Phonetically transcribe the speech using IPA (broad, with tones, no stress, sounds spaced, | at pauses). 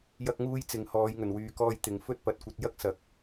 j ɐ˧ k̚ ŋ uː˧ j t͡s ɪ˨ ŋ h ɔː˨˧ j ŋ ɵ˨˩ n w yː˨ k ɔː˧ j t̪ ɪ˨ ŋ f ɵ˥ t̚ p ɐ˨˥ t̚ kʷ ɐ˨˥ t̚ j ɐ˥ k̚ s ɐ˨˥ k̚